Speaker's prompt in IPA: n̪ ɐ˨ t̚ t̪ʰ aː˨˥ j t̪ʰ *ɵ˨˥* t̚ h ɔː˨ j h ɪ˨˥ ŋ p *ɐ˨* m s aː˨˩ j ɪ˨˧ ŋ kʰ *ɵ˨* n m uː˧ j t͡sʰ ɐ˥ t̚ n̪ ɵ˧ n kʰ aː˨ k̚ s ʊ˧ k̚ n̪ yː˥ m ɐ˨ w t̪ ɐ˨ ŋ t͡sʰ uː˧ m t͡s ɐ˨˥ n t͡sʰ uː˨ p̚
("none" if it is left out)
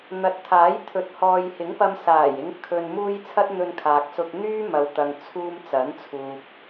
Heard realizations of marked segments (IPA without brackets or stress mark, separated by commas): ɵ˨˥, ɐ˧, ɵ˨